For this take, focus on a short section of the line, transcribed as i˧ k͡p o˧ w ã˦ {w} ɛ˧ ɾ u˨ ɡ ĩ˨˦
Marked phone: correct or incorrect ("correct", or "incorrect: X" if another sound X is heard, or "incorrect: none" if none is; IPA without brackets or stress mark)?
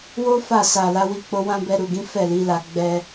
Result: incorrect: b